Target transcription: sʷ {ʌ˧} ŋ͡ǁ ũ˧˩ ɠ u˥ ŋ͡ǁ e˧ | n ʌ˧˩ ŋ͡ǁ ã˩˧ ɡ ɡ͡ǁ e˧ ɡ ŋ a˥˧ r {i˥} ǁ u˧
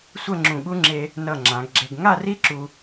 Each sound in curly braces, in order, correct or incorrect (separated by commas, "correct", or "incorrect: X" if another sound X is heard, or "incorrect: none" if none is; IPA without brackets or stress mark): incorrect: ʌ˥˧, correct